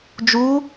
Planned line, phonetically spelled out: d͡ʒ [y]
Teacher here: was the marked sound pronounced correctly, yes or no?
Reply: no